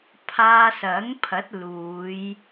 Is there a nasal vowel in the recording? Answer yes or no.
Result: no